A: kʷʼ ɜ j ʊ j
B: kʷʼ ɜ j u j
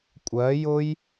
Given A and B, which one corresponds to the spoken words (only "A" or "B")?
A